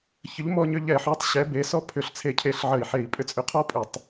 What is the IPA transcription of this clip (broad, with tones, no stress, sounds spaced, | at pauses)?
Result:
ç ə˨˥ ʎ m ɔ˧ ɲ ʏ˧ ʎ ɛ˧˩˧ ħ ɔ˨˥ tˤ ɕ ɛ˨˥ b e˨˥ s ɔ˥ pʰ ʏ˧˩˧ ɬ t͡sʰ e˧˩ cʰ e˧˩ ɬ ʕ ə˧˩˧ i̯ ħ e˧˩˧ i̯ pʼ ʏ˧ t͡sʼ ʏ˨˥ qʰ ɔ˥ pʼ ʏ˧˩˧ tˤ